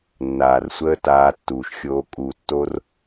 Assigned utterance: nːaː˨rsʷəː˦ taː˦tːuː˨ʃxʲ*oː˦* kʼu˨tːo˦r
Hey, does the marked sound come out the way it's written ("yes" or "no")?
yes